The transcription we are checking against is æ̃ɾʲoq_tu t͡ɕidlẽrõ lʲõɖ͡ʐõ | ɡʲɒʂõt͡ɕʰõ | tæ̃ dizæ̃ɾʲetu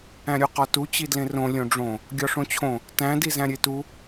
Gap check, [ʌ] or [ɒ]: ɒ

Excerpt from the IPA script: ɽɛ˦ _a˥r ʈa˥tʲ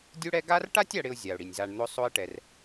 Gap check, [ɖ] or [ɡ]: ɡ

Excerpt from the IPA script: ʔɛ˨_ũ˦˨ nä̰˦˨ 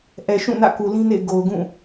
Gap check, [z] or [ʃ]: ʃ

